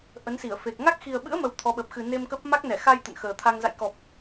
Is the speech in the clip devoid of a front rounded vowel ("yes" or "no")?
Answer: yes